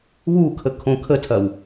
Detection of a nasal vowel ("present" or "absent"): present